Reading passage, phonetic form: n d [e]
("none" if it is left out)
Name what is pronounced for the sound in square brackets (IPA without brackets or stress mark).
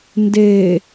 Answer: e